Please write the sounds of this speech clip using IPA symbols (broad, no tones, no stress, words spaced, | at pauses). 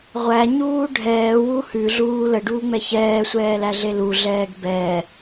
ʁʷæɲuː ɖʱɛːwu hʉɮuː ləɖuːŋ͡mɛ çɛːsʷɛːlæɮe luɮɛːɡ bɛ